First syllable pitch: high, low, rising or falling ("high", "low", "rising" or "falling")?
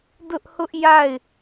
high